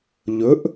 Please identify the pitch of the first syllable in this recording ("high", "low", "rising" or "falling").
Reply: rising